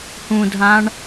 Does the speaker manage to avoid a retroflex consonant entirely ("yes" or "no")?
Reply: no